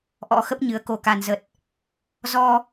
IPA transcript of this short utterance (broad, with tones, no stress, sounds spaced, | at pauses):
ʔ ɔ̰˧˥ x ə˦˥ p̚ ɲ ɨ˨˦ ə̯ k o˨˩ k a˨˩ n z ə˨˩ t̚ | z ɔ˧